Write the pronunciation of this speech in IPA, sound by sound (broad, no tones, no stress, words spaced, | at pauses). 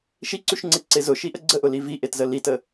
ʃiǀʉʃŋ͡ǀeǀe zʊʃiʔə ɡ͡ǀəʔʊli viʔetzə litə